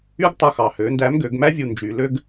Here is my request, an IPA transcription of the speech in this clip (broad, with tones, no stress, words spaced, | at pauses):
y˥ɡtˤɵ˧xɑ˩ hø˩˧ndæ˧˥mɡø˩˧ɡmæ˥ vʲu˧nd͡ʒy˩˧lø˥ɡ